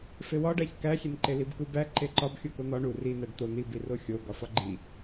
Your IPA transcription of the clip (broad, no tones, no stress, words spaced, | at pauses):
fewɒɖæç kæxʲenǃe libkubæ ǃeǃɒb xʲukon̪ɒ ɳu rinæɖ t̪o n̪ibiro xʲo ɡɒfɒɡ͡ǃi